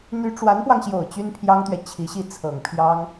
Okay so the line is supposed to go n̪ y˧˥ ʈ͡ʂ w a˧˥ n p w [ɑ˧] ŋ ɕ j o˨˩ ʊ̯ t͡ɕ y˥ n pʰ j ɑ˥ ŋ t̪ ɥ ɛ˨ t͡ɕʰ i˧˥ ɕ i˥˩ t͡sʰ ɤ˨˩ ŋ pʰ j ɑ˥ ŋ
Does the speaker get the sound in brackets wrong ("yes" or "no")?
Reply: no